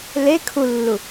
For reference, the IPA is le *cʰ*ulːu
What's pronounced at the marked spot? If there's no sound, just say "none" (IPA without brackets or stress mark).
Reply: kʰ